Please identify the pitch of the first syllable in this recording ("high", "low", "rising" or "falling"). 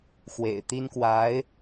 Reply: low